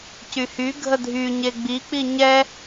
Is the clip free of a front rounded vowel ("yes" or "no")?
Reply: no